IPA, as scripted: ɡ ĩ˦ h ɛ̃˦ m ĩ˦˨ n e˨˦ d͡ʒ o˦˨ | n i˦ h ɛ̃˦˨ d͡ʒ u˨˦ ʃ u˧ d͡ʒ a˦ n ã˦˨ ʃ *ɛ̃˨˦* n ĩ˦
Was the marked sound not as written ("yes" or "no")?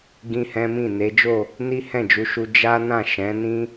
no